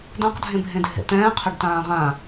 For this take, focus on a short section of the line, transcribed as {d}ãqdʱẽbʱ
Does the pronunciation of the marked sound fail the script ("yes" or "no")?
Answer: no